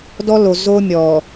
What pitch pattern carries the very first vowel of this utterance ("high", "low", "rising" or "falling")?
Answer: high